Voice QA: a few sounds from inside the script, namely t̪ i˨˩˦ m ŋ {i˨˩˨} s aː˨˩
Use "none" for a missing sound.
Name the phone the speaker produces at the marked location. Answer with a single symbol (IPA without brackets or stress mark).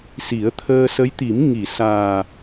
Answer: i˨˩˨